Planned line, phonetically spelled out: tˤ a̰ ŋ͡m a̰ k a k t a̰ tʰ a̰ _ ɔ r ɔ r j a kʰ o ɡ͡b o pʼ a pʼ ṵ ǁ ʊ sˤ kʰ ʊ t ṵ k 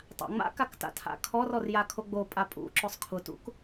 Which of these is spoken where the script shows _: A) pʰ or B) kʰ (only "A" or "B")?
B